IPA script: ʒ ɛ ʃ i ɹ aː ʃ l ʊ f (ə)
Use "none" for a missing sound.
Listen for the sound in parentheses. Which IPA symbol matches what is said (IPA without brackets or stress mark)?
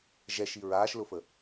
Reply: ə